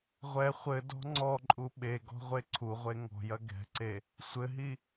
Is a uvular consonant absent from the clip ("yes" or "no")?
no